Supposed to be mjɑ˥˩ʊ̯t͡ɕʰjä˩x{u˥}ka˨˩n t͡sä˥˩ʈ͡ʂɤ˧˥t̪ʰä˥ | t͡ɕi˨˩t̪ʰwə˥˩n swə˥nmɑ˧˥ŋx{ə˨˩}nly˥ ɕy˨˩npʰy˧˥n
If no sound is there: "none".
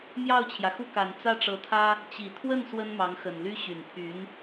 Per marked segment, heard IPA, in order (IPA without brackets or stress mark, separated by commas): u˥˩, ə˨˩